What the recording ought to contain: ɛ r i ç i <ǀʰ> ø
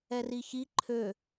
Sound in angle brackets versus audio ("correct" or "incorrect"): incorrect